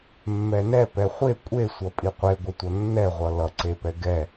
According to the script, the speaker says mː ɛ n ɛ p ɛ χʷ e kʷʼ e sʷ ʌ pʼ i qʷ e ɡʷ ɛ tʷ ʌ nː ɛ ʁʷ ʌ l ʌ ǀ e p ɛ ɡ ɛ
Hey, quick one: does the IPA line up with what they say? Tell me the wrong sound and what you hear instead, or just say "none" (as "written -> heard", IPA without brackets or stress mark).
none